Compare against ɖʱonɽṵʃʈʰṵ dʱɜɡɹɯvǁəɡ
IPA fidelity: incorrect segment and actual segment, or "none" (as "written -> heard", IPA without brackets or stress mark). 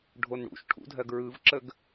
none